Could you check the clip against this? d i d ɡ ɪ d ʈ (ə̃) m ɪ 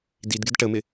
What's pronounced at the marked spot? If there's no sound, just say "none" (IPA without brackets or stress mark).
ə